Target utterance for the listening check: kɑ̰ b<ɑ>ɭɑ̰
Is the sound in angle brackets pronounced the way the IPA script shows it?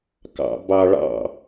yes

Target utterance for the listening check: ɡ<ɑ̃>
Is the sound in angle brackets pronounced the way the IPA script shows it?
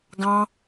yes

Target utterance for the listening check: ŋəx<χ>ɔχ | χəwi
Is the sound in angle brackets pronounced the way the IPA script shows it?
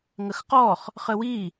no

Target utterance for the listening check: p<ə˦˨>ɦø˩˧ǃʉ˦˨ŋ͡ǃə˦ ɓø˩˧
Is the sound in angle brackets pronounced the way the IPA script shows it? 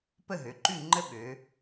yes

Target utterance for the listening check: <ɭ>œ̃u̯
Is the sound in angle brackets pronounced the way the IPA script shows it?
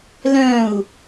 no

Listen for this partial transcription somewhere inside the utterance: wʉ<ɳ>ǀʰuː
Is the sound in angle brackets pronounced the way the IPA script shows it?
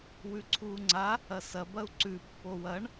no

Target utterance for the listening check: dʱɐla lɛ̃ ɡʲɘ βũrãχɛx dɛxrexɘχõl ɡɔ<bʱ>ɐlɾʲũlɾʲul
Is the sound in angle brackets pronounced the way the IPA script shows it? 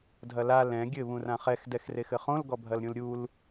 yes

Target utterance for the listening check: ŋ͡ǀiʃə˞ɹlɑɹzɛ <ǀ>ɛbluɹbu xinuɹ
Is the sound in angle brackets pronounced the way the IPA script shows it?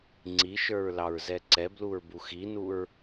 yes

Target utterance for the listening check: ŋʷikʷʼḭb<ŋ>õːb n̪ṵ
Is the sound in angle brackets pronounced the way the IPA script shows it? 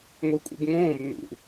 yes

